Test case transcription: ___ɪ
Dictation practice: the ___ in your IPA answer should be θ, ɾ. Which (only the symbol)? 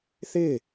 θ